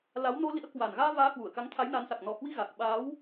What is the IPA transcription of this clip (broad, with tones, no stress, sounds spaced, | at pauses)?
l a˨˦ w n o˧ l ḭ˧˥ ə̯ k w a˨˩ n ɣ aː˧ v aː˨˦ h w u˧˩ ə̯ k a˨˦ ŋ t̪ʰ a˨˦ j n a˨˦ n s a˨˩ k̚ n ɔ˨˩ h w i˧ ɣ a˨˩ k̚ ɓ aː˨˦ w